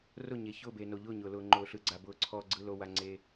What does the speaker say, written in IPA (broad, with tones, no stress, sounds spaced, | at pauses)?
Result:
r ʊ˦˨ ɲ e˨ ç ʊː˦˨ b e˨ n o˨ ʎ ʊː˦˨ ɲ ʊː˨ l ʊː˨ ŋ͡ǃ ʊː˨ ɬ ɯ˨ ɡ͡ǀ a˨ b ʊː˨ ǀʰ ɔː˨ ɡ͡ǀ ɯ˨ l o˨ w a˨ ŋ͡ǀ e˨